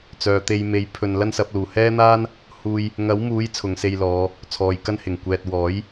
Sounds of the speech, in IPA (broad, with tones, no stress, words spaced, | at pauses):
t͡sœː˨t̪e˧j me˨˥jpʰɵ˨n lɐ˥nsɐ˨˥p̚ luː˨˩hɛː˥n̪aː˥n | huː˥j | ŋɐ˨˥wmuː˨˥j t͡sʰʊ˨˧ŋse˧jlɔː˨˧ | t͡sʰɔː˨jkɐ˥nhɪ˨˩ŋ kʷɛː˨t̚wɔː˨˥j